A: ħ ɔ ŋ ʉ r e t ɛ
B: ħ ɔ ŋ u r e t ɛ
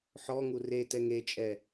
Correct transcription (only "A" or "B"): B